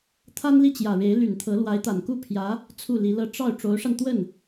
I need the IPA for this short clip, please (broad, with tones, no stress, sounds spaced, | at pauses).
t̪ʰ a˥ n l i˥˩ t͡ɕ j ä˨˩ ɻ e˧˥ ɪ̯ l y˨˩ n t̪ʰ ɤ˧˥ l w a˧˥ ɪ̯ t̪ a˨˩ n k u˥˩ pʰ j ä˧˥ | t͡sʰ u˥˩ l i˧˥ l ɤ˥˧ ʈ͡ʂ ɑ˥˩ ʊ̯ ʈ͡ʂ o˧˥ ʊ̯ ʂ a˧ n t̪ w ə˥˩ n